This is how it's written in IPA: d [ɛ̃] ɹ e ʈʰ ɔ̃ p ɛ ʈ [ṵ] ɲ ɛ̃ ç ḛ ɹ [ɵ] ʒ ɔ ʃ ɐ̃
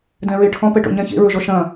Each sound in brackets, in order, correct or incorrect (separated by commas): correct, incorrect, correct